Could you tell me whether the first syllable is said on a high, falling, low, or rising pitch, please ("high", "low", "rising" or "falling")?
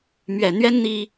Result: low